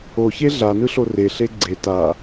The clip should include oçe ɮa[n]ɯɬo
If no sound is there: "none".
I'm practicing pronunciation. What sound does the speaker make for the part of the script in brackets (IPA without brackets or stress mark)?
n